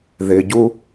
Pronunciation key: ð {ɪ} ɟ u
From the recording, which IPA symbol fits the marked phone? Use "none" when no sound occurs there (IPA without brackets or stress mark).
ɪ